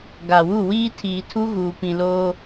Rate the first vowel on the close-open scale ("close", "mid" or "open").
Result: open